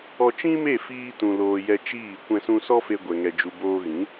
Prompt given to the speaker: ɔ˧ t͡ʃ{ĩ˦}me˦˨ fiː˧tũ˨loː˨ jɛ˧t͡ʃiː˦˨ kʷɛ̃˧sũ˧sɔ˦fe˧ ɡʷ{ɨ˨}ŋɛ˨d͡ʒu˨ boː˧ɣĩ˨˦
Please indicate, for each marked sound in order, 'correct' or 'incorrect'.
correct, incorrect: ɛ˨

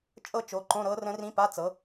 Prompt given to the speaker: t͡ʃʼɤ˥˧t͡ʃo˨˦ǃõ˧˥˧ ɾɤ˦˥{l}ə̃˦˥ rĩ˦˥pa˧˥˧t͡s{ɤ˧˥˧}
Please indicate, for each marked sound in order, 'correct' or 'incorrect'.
incorrect: r, incorrect: ɤ˨˦

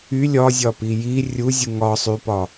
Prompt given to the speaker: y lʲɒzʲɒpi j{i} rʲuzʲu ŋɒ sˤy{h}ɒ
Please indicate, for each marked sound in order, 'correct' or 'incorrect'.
correct, incorrect: p

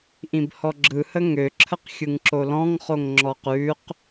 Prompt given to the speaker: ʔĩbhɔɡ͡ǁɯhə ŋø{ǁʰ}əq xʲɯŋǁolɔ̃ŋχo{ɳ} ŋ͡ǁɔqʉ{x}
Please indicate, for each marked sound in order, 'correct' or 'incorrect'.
correct, incorrect: ŋ, incorrect: q

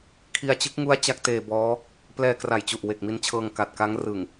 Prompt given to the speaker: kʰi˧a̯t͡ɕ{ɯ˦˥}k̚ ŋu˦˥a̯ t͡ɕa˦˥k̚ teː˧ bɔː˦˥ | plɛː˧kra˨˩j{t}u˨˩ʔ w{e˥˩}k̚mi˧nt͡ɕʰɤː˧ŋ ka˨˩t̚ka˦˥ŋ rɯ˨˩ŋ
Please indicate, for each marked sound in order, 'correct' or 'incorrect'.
correct, incorrect: t͡ɕ, incorrect: e˨˩

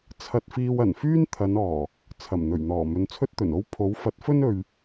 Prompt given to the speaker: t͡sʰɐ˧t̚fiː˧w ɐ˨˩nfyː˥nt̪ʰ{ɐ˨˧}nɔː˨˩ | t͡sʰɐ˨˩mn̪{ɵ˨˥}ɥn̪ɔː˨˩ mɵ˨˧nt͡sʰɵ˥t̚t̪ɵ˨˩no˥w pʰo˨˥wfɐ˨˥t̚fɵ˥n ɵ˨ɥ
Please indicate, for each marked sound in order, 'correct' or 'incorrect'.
correct, incorrect: ɵ˨˩

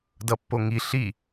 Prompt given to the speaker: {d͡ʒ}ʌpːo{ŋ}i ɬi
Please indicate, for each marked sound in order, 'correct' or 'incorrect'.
incorrect: d, correct

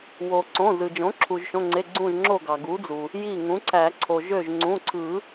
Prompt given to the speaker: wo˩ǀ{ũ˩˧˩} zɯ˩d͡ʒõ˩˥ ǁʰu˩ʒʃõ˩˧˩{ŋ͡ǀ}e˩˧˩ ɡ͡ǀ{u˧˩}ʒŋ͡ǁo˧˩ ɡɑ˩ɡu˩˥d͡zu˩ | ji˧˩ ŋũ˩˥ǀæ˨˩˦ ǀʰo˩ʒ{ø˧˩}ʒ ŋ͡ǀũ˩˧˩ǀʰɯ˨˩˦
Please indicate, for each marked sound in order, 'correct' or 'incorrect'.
incorrect: õ˩˧˩, correct, incorrect: ũ˧˩, correct

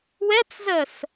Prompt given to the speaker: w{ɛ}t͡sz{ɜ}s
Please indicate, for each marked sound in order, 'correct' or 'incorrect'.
correct, correct

